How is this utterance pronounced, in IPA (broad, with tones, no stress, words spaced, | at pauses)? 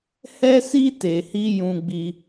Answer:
hɛ˦si˦ te˧hi˦ jũ˦ɡ͡bi˦